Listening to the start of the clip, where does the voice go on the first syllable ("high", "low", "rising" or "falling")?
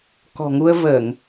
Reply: low